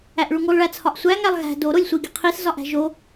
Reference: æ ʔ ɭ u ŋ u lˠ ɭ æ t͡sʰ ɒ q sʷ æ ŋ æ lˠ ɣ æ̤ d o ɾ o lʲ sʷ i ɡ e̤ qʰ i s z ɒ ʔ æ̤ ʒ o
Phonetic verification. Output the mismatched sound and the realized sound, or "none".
q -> ʔ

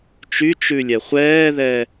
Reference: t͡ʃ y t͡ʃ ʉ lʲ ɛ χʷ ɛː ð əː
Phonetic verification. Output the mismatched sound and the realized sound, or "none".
əː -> ɛː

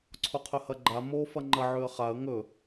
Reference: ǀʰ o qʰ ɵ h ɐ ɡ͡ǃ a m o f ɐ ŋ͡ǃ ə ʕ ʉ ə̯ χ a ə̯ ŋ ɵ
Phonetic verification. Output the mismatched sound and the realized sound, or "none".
ə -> ɐ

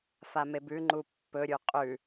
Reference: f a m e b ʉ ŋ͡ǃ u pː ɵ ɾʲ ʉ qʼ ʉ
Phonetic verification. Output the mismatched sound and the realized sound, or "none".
none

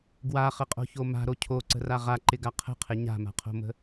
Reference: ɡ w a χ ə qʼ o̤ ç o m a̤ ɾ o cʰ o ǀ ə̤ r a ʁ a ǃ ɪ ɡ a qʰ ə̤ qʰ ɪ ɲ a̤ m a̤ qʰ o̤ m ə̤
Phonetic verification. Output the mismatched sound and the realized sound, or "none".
none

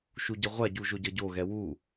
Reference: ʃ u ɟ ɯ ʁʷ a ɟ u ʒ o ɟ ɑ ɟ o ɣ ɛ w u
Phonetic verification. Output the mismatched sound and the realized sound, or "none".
ɑ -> ʌ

